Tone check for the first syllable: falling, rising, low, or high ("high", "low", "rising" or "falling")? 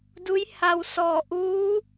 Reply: rising